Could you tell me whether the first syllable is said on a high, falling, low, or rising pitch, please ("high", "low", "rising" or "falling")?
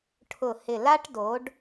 falling